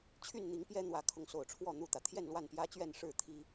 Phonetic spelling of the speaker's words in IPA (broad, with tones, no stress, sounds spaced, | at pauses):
t͡ɕʰ y˥˨ n n̪ i˨˦ ŋ p j ɛ˦ n̪ w ä˨˦ kʰ ʊ˨˦ ŋ s o˨˩ ʊ̯ ʈ͡ʂʰ w ɔ˥˨ n̪ u˥˨ t̪ ä˩ t̪ʰ j ɛ˥˨ n l w a˥˨ n p j ä˦ t͡ɕ ɥ ɛ˥˨ n ʂ ɻ̩˥˨ t̪ʰ i˦